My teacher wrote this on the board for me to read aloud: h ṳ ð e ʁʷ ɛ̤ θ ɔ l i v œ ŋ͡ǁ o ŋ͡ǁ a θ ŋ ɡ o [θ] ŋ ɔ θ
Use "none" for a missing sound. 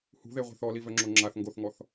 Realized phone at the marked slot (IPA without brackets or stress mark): θ